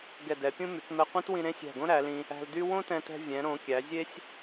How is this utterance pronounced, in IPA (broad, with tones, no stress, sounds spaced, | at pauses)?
ɡ ɛ˧˩ d ɛ˩˧ pʲ ũ˥ m y˩˧ k m ɛ˧ qʷ ẽ˥ t w ĩ˧ ɾ ẽ˥ sʲ æ̤˧˩ ɡ õ˥ ɾ æ˩˧ l ĩ˧ | æ̤˧ l d y˥ w õ˥ t ɛ̃˧ t ɛ̤˧ vʲ ɛ̃˩˧ ɾ õ˩˧ kʲ æ˩˧ zʲ e˥ sʲ